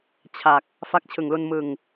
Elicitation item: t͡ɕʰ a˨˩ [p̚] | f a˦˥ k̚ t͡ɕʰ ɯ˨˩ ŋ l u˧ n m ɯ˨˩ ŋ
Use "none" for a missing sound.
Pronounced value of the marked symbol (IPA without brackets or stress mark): k̚